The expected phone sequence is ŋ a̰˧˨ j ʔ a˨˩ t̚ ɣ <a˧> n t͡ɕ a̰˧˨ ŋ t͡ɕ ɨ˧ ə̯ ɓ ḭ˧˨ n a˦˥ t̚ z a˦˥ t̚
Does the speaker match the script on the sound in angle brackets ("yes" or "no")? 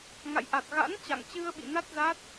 no